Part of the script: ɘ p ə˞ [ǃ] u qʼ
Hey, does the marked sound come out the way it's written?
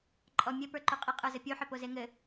yes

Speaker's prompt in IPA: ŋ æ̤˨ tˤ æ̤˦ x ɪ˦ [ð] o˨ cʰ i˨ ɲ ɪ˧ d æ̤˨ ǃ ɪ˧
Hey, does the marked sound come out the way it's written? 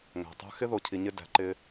yes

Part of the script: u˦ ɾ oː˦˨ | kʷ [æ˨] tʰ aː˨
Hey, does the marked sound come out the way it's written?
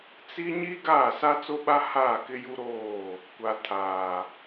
no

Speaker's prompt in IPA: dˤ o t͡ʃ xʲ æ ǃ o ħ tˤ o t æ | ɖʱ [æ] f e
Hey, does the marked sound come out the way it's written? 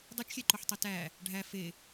yes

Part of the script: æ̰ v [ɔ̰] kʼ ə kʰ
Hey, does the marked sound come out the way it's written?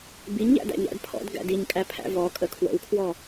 no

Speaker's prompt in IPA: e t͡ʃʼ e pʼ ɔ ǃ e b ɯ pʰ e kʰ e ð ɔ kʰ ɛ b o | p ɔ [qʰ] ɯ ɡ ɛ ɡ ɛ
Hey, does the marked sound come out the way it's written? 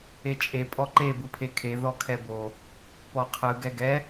yes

